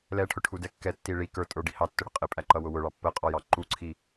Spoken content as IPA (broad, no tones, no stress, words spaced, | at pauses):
lɛʈʰʊʈʰudɛ kːɛtːi ɭi kə˞tʼə˞ɖi hɑtːʊɽə qʼɪpʼæǃʌwʊ wʊɭɑ pːəqʼɔjɑ ǃuǀʰi